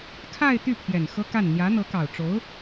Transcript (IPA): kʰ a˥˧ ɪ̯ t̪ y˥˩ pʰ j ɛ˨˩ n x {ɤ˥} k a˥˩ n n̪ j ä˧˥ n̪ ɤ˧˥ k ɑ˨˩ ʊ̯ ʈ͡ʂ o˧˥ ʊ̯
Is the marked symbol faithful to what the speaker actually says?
yes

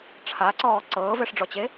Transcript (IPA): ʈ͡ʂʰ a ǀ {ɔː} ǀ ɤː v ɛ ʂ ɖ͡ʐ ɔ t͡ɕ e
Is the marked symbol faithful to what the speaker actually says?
yes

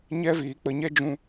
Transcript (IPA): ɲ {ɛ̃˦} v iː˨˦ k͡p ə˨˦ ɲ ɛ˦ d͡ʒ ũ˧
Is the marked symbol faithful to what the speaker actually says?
no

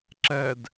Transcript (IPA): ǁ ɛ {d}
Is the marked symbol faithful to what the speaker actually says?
yes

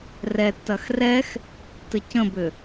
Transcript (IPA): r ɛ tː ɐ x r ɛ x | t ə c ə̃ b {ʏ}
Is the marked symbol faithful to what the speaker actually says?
yes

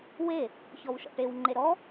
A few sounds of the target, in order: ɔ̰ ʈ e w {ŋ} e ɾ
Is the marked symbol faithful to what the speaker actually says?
no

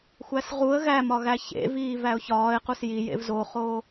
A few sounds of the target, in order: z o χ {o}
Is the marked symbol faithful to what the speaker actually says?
no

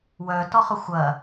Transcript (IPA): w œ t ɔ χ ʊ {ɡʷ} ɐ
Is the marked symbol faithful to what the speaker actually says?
no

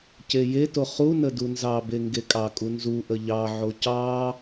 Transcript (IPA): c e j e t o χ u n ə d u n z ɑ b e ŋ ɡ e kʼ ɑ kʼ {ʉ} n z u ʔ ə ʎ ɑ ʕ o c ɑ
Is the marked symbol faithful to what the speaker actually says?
no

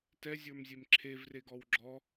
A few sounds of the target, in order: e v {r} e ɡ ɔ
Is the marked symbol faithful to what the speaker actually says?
yes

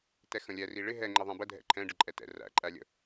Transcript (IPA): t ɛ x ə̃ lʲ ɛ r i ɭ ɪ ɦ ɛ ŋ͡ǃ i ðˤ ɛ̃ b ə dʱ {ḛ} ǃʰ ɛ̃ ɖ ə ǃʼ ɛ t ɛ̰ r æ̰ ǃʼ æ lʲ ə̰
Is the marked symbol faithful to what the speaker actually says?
no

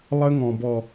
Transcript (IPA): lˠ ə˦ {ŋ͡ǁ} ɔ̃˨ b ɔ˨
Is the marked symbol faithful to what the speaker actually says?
no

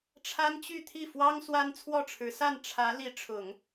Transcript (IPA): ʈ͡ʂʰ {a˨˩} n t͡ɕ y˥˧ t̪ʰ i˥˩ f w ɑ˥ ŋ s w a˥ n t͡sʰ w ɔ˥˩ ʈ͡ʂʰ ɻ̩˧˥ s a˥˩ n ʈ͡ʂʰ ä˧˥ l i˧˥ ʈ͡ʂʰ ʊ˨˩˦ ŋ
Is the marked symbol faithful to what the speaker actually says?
no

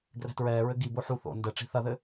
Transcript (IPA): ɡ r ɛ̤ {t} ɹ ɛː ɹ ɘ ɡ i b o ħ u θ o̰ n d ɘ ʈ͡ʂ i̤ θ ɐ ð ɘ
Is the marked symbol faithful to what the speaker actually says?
yes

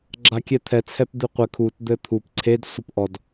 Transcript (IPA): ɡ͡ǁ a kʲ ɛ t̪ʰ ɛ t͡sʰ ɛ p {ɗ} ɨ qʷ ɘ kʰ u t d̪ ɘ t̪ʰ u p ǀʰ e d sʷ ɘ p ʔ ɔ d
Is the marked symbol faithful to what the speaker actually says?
no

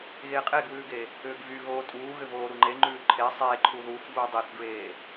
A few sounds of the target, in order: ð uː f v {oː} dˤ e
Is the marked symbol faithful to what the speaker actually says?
no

